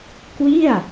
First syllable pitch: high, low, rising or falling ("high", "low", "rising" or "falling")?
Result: falling